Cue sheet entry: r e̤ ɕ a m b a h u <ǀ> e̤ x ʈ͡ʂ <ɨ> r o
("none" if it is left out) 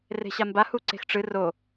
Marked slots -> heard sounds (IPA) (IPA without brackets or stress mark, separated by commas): ǀ, ɨ